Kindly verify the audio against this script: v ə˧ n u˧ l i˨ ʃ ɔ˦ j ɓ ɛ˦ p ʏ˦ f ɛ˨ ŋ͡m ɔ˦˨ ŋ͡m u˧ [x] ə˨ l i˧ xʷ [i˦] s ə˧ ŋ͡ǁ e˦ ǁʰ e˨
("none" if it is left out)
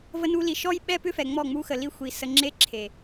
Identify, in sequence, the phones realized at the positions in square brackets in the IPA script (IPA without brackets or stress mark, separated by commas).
x, i˨